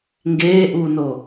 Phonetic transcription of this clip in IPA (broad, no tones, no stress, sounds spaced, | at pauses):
ŋ ɡ eː ʔ uː n o